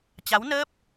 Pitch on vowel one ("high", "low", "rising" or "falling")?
rising